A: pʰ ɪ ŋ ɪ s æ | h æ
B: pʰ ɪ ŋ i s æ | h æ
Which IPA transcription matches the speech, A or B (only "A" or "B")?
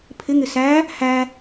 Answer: A